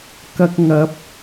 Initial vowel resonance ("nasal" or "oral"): oral